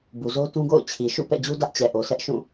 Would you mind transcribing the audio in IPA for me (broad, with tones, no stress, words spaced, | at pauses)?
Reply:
bu˨zo˦tũ˦ɡo̰˦˨ʊ̯ t͡ɕʰi˨ʃṵ˦˨ pɛ̰˦˨d͡ʑu˦ dä˦ʔt͡ɕɛ˨ʔo˨sɛ˦ʔ ʃũ˦˨